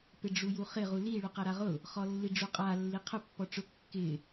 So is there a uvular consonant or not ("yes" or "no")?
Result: yes